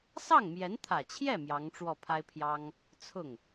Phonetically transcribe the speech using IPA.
sɑ˥˩ŋmjɛ˧˥nt̪ʰä˨˩t͡ɕʰjɛ˥˩ mjɑ˧˥ŋʈ͡ʂwɔ˥˩pʰa˥ɪ̯pʰjɑ˥ŋ | t͡sʰʊ˥˩ŋ

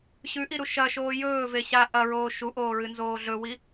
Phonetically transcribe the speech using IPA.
ɕʉʔiɾu ʃɐʃoː jɵːve ɕa ʔɐɹoː ʃuʔoːɹɨnzoː ɮɵwi

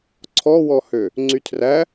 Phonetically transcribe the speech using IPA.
ǀʰɔwɔhø | ŋ͡ǀytʰræ

